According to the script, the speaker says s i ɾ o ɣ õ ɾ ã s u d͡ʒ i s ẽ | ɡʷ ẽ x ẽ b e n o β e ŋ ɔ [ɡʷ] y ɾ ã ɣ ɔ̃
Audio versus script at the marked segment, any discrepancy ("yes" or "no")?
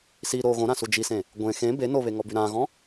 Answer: yes